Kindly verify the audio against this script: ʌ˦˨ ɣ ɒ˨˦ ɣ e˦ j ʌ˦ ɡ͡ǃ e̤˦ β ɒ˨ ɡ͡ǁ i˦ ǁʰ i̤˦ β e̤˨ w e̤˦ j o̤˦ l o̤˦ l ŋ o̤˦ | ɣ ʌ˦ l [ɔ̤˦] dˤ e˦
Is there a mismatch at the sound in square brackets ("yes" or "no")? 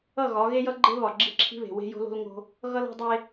no